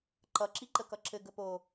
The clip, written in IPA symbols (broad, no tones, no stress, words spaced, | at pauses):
ǃʌ ǁiǃəkʌǁɘ ɡəpo